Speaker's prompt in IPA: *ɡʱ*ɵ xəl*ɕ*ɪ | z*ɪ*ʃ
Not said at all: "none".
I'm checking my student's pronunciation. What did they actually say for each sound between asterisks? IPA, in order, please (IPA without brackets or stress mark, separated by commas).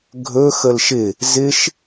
ɡʱ, ʃ, ɪ